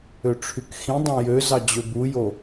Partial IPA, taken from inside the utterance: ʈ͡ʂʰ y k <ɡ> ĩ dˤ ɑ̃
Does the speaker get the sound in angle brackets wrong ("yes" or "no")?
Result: yes